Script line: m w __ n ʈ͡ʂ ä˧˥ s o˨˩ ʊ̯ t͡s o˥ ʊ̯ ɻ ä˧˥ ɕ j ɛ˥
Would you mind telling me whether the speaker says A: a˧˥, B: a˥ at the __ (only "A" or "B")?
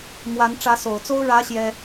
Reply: A